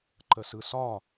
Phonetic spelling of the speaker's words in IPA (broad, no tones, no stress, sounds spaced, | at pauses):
ǃ ə s ɯ s ɒ